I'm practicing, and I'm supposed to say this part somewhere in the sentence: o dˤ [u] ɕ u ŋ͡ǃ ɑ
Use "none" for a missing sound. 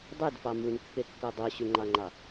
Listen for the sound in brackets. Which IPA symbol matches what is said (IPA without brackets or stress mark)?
u